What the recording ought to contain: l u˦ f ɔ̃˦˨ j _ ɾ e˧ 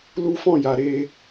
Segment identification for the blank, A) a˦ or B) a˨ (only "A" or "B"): B